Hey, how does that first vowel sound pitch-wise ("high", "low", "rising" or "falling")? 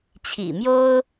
low